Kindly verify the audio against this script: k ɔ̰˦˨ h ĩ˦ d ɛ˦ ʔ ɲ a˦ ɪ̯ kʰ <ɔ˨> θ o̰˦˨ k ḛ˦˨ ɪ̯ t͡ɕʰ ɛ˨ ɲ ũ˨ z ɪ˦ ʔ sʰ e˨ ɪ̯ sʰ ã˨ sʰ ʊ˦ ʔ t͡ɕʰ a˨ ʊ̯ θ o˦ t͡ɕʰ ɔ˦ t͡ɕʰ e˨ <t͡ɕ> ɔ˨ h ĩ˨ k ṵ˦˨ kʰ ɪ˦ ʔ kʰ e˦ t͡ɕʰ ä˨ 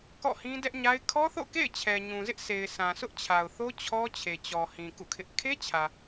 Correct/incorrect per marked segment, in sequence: incorrect, correct

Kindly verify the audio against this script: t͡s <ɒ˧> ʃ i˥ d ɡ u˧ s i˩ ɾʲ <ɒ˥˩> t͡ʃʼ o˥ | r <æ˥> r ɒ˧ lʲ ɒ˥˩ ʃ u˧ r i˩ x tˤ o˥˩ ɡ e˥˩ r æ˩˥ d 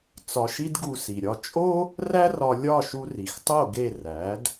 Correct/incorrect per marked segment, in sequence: correct, correct, correct

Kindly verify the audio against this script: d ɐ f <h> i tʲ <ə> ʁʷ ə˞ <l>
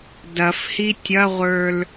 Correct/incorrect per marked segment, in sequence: correct, incorrect, correct

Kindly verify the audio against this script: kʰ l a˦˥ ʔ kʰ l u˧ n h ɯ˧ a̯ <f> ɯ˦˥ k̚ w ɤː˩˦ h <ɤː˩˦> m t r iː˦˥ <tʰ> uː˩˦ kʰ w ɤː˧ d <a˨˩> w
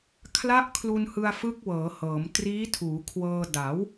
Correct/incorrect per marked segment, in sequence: correct, correct, correct, incorrect

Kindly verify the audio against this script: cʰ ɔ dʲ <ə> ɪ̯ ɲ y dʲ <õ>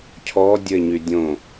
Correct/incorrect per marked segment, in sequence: correct, correct

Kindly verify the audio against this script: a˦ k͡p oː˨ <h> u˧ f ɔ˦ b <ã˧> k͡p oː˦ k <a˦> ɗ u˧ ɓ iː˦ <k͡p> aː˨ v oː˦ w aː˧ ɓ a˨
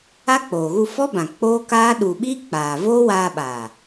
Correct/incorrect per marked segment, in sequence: incorrect, incorrect, incorrect, correct

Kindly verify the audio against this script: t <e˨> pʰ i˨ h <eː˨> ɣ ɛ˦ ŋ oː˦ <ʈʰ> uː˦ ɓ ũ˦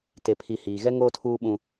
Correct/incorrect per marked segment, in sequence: correct, incorrect, incorrect

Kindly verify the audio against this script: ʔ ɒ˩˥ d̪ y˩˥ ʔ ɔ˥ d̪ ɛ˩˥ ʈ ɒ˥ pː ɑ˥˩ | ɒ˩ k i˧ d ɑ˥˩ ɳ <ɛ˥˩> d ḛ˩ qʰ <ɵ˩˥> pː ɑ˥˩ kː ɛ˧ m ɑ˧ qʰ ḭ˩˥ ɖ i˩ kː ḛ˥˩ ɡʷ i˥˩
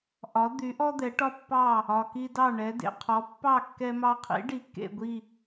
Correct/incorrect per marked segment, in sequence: incorrect, incorrect

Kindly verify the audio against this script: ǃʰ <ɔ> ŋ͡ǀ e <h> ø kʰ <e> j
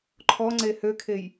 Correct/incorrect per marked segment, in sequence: correct, correct, correct

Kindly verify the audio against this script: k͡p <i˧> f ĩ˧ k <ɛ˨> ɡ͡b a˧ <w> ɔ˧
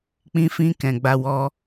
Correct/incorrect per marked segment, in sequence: incorrect, incorrect, correct

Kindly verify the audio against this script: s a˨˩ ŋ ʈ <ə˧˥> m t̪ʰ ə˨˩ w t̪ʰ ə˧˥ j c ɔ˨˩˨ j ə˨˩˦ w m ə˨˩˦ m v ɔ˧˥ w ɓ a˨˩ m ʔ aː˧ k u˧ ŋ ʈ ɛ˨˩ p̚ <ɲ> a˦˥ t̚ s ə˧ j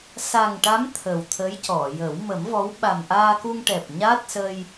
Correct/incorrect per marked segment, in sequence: incorrect, correct

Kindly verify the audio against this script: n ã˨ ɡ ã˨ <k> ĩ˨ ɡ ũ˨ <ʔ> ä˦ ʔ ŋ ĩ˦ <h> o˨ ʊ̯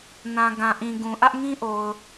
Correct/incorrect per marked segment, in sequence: incorrect, correct, incorrect

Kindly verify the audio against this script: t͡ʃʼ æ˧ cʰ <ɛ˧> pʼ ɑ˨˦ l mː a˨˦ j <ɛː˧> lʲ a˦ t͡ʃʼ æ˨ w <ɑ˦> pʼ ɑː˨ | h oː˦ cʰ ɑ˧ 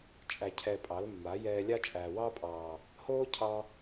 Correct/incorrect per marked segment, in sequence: correct, correct, correct

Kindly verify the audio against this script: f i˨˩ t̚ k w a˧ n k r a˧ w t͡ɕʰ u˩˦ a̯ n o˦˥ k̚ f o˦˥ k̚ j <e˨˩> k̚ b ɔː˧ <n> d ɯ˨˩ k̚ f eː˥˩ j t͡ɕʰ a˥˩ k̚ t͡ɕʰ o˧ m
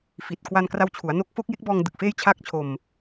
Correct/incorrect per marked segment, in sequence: incorrect, incorrect

